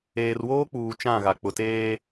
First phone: eː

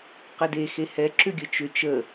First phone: q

